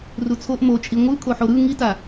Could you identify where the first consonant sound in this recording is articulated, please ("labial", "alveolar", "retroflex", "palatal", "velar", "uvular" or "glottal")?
alveolar